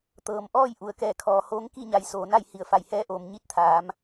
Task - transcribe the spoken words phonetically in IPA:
t̪ɤː˩m ʔɔː˥˨j ʔu˩ə̯kɛː˧˩kʰɔː˩hoː˧˥ŋ ki˥˨ɲa˩j soː˩na˥˨j hi˧˩ə̯fa˧˩jhɛː˧˥ʔoː˩m ɲi˧˥t̚t̪ʰaː˩˧m

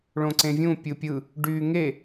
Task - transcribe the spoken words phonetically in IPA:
ɭõǀẽvʲũ pʲɯpʲɯ | ɖyːŋe

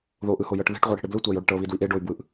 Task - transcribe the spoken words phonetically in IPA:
ðoʔɯhojɤʈ ðe̤ʈʁʷɤɽi̤ɽe blɯtʷajoɽeʈ ɤβidwiʔ eɖoy̯bwɯʔ

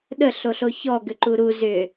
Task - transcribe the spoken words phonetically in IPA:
ɗəɬoɬo çɔɡʏǃu ɾu zʏ

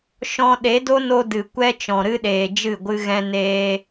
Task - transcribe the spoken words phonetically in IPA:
ʃɔ̃˧ ɗe˨˦do˦no˧ dɨ˨ kʷɛ˦t͡ʃɔ̃˨ɾɨ˦ɗeː˨ d͡ʒɨ˦˨ɡʷɨ˦ɣɛ̃˦neː˦

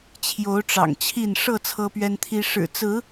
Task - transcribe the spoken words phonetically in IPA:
t͡ɕʰjo˨˦ʊ̯ʈ͡ʂɑ̰˨˩ŋt͡ɕʰi˥˨n ʂɤ˥˨ t͡sʰɤ˦pɥɛ˦nt̪ʰi˦ ʂɻ̩˨˩t͡sɹ̩˨˦

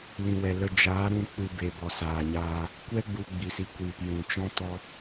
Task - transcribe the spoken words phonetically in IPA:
lĩ˨wɛ˨lə˧ d͡ʒaː˨˦ɾũ˧ k͡pɨ˧be˨ bɔ˨saː˨ɲaː˧ | kʷɛ˦ ɡ͡bu˧ɡ͡bi˨si˨kʷiː˨p jũ˨t͡ʃɔ̃˦tɔ˦

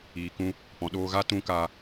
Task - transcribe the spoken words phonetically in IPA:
iː˨kũ˧ | pɔ̃˨ɗoː˧ɣa˦ tũ˧ka˧

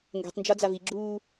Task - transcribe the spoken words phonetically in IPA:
ŋɡɛ̤tˤnd͡ʒɒd͡zav iɡ͡ǁuː

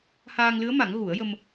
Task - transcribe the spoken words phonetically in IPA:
haː˧ŋlɨ˧˥ə̯ma˨˩˦ŋ ɣu˨˩˦ə̯jə˧m

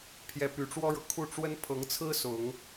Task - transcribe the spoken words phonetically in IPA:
pʰjɛ˧˥py˨˩ʈ͡ʂwɔ˥ɻɤ˨ kʰu˥˩ ʈ͡ʂwə˥npʰɤ˧˥ŋt͡sʰɹ̩˥ sʊ˨˩˦ŋ

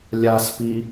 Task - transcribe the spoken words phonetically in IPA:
lʲaspi

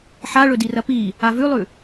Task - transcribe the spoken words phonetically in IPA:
ħaɭɵdirɐ pi | avʉlˠʉ

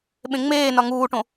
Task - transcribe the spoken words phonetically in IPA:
ɓẽŋ͡meːnɒ ŋuːʈõ

